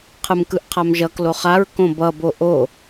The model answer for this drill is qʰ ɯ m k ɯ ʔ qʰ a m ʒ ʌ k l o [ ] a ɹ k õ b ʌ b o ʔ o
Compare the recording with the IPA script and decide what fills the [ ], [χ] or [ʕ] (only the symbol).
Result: χ